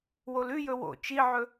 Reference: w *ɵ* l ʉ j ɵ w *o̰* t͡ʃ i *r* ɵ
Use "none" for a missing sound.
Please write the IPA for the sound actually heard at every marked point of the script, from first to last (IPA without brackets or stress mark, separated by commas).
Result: o, o̰, ʕ